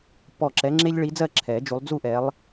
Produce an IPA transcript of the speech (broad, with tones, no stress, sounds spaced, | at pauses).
p ɔ˧˩ ǁ ɛ˨˦ ŋ͡ǁ e˦ ʎ ɭ i˨˦ d͡z ɜ˥˨ ǁʰ ɛ˨˩˦ d͡ʒ u˨˦ lˠ d͡z u˥˨ ʔ ɛ˨˦ lˠ